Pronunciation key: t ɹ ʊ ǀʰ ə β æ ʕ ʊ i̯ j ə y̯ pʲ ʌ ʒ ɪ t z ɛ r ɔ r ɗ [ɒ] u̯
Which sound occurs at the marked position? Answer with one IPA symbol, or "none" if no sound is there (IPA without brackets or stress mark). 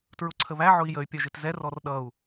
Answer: ʌ